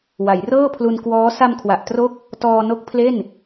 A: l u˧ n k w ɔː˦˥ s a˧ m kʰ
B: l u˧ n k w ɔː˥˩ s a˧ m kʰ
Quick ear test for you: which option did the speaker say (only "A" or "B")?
A